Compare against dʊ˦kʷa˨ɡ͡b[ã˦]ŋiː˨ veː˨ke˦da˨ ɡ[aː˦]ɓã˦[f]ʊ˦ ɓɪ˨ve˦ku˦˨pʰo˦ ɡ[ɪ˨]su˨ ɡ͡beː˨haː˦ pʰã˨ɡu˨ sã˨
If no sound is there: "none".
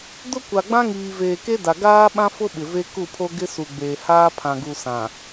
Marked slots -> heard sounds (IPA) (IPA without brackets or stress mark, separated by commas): ã˦, aː˦, f, ɪ˦